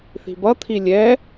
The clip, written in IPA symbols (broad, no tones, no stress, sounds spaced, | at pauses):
θ i̤ b ʌ t̪ʰ i lʲ ɛ